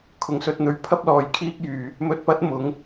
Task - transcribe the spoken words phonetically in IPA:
kʰ ʊ˨ ŋ s ɵ˧ t̚ n̪ ɵ˨˥ ɥ pʰ ɐ˥ p̚ l ɔː˨˧ j kʰ iː˥ k̚ j yː˨ | m ɵ˧ t̚ p ɐ˥ t̚ m ʊ˨˥ ŋ

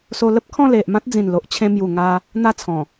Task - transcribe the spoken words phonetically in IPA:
s o˧ l ə˦ p̚ kʰ ɔ̃˥˧ l e˨ ʔ m ã˦ t̚ d͡z ĩ˨˩ n l o˨ ʔ t͡ɕʰ ẽ˧ m j u˨˩ ŋ a˧ | n̪ a˥˧ t͡sʰ ɔ̃˨˩

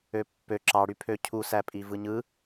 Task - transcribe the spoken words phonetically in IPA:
ø pː ø ǁ ɑ ɽ y pʰ ø cʰ u s æ pʼ i v ɯ ɲ ɯ

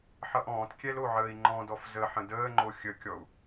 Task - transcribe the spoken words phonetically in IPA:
ħ ʌ ʔ ɔ̃ː t kʲ ɛ l o ʕ əː i̯ ŋ͡ǃ ɔ̃ d ɔ f z ə ħ ə̃ d əː ŋ͡ǃ o xʲ ə kʲ ɔ u̯

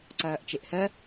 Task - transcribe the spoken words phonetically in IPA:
ǀ ɐː ʔ t͡ʃ e ʔ h ɜ

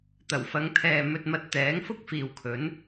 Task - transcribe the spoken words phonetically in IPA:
t̪ ɐ˨˩ w f ɐ˨˧ ŋ t̪ʰ ɛː˨ m ɵ˧ t̚ m ɐ˧ t̚ t̪ ɛː˨˥ ŋ f ʊ˥ k̚ f iː˨ w kʰ ɵ˨˥ n

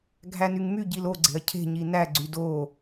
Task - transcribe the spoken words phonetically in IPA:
ɡʱ æ n y ŋ m y ɟ i l o ɡ͡ǀ e̤ ɐ̯ cʰ e̤ ɲ i n æ ɡ͡ǀ y d o

